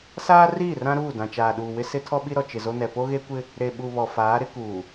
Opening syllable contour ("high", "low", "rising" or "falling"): high